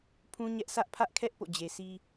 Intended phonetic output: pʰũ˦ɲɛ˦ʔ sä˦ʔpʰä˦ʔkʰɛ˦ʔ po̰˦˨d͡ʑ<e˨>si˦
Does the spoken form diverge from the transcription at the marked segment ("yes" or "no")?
no